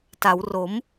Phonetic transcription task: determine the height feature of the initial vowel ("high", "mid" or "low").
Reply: low